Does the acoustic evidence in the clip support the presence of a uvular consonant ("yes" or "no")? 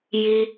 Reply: no